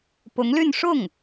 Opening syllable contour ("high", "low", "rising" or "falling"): rising